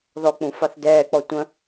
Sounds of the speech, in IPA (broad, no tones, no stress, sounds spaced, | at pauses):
ð ɔ k͡p ũ f ɑ θ d ɛː k͡p ɔ tʷ ə̃